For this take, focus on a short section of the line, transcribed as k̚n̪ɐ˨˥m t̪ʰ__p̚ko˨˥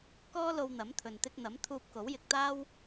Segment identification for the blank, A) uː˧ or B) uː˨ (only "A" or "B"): A